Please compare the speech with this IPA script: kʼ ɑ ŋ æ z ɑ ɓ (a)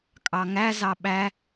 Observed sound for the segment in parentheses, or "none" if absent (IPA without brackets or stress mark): æ